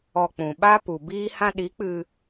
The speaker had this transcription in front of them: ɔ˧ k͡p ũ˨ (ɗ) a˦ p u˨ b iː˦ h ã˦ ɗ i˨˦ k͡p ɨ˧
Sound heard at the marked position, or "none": ɓ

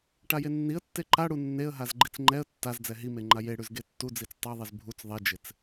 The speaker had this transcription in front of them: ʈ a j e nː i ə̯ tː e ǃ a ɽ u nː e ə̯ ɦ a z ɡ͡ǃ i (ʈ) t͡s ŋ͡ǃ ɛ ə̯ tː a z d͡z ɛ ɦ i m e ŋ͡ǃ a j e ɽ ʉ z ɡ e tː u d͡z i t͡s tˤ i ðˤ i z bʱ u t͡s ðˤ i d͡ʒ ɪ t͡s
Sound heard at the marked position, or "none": none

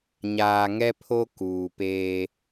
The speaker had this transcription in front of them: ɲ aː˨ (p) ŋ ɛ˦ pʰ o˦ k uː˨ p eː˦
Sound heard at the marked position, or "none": none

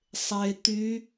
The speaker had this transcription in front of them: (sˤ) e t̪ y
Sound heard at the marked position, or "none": sˤ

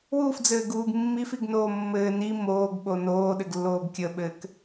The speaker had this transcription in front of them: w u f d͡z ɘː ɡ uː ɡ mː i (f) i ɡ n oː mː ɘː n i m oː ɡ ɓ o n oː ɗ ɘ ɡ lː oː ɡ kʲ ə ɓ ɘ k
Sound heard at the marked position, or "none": f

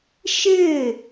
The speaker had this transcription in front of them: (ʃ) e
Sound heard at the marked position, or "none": ʃ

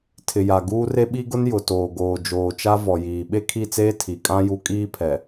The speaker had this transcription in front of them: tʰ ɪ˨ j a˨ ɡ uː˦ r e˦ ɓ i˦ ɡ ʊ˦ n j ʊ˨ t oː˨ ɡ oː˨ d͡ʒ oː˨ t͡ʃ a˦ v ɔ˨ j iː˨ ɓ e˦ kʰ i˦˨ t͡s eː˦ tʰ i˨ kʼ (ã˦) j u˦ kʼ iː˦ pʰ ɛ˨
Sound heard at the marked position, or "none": ã˦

